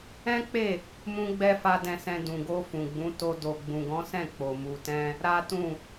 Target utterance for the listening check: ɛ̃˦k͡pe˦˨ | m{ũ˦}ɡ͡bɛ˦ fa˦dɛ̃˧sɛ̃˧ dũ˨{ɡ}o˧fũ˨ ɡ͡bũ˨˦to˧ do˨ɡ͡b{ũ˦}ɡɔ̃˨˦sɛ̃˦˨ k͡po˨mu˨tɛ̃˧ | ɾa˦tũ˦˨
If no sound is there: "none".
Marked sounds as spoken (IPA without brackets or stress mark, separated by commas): ũ˦, ɡ, ũ˨